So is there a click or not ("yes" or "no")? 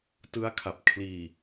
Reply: no